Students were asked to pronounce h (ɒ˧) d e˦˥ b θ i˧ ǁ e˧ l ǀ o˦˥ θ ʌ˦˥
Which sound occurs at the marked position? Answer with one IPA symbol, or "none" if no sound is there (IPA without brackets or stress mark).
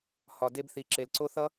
ɒ˧